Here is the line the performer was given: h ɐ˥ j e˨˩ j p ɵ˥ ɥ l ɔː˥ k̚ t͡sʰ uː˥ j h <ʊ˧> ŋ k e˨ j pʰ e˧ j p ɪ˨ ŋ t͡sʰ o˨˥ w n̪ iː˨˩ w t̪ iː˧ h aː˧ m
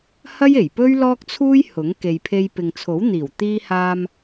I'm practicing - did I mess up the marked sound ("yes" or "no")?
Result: yes